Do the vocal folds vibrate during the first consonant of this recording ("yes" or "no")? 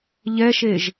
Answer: yes